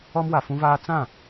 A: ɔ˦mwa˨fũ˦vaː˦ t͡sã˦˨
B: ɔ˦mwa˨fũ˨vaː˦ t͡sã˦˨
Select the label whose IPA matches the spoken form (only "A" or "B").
A